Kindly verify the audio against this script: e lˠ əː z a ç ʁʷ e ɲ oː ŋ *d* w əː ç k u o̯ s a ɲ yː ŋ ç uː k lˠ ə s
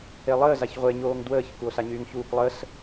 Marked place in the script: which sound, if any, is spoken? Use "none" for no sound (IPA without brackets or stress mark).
d